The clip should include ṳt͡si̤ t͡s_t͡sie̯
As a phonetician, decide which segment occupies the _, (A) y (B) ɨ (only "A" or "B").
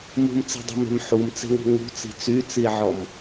A